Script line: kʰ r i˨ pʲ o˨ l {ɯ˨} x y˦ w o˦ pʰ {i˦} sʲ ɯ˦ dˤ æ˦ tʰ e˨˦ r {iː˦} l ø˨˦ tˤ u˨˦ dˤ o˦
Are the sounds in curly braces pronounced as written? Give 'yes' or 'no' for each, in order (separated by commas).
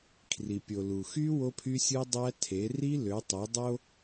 no, no, no